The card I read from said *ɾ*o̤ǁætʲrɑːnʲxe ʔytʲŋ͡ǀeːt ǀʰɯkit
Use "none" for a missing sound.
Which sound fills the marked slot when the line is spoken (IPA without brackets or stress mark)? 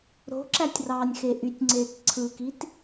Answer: ɾ